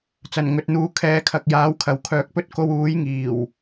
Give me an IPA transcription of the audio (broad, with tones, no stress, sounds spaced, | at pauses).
t͡s ɐ˨˩ n ŋ ɵ˨ t̚ n̪ uː˨ kʰ ɛː˨˥ kʰ ɐ˨ k̚ j aː˨˥ w kʰ ɐ˨ w kʰ œː˨ k̚ p ɵ˥ t̚ k o˧ w uː˨˥ j ŋ iː˨˩ w